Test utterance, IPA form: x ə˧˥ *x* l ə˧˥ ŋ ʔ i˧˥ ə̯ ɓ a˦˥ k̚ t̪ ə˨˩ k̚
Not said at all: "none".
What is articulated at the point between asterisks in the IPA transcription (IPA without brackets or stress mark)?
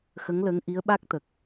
ŋ